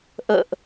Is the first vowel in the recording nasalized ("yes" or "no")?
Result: no